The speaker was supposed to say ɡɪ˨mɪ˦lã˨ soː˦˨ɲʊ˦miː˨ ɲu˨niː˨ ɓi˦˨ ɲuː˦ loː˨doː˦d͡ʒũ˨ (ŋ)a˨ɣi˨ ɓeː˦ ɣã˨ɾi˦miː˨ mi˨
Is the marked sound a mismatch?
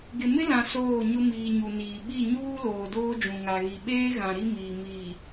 no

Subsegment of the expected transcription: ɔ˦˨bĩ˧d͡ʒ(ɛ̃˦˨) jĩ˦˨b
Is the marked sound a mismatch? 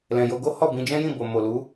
yes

